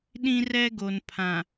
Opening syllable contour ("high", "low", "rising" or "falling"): high